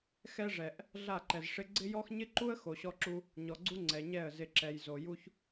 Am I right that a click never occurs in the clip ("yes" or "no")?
no